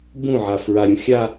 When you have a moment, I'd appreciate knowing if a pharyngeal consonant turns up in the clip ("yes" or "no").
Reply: yes